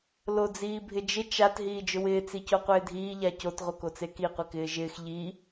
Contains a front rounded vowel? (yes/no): no